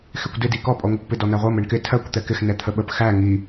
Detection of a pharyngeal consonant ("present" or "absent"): absent